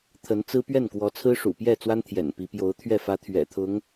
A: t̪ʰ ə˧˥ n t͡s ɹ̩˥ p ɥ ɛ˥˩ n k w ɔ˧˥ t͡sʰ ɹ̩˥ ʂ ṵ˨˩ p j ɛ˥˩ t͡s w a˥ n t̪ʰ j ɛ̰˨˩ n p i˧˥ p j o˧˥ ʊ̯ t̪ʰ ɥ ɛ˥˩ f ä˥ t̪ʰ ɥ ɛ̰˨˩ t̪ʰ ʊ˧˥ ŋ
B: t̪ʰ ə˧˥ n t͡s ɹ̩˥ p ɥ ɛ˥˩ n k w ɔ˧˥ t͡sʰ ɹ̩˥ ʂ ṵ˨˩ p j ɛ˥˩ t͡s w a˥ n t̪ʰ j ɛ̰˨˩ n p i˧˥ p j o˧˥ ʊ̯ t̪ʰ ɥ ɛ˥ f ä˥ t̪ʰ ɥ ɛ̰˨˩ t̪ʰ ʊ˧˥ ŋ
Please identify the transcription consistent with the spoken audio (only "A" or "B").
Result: A